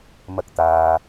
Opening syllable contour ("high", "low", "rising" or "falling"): high